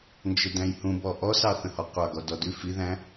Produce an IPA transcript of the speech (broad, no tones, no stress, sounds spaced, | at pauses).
n d͡ʒ ə d æ̃ j h ũ b ɔ ʔ ɔ s ɑ θ ə̃ h ɔ qʷ ɑ ɡ ɔ d ɔ d ʉ f i ð æ̃